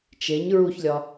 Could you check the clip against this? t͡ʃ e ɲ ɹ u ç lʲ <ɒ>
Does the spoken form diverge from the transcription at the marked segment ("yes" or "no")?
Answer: no